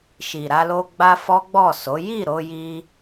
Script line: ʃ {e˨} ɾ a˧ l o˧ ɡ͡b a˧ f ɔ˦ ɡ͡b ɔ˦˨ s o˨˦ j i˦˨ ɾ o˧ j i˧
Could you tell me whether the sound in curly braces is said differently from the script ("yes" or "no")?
yes